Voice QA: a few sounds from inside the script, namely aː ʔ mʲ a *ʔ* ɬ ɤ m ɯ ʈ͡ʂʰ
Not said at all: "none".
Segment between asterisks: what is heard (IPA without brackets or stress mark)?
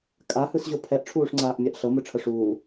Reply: ʔ